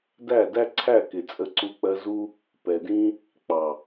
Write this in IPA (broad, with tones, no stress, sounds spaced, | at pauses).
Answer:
d æ˦˨ d æ˦ ǀʰ æ˦˨ k ɪ˨ t͡sʼ ə˧ ǀ u˧ k͡p ɜ˧ z u˦ | p ɛ˨ d ĩ˦ | k͡p ɑ˨